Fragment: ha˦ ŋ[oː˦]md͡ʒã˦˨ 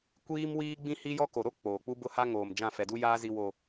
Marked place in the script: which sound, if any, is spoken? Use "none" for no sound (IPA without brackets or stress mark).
oː˨